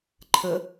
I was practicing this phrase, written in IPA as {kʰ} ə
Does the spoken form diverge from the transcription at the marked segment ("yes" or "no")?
yes